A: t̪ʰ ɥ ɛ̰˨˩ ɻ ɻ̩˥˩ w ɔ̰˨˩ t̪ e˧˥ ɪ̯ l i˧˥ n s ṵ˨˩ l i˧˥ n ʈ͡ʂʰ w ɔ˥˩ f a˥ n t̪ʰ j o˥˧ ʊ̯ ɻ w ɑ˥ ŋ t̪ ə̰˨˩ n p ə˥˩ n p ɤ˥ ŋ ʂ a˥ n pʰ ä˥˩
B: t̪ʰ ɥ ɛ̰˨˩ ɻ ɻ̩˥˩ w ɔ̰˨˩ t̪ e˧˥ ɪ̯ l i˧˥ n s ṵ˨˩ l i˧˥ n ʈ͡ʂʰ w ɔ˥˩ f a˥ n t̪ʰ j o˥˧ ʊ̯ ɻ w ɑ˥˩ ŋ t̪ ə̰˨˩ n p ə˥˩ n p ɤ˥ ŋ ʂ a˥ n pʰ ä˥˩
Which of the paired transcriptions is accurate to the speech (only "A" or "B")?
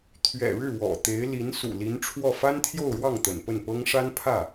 B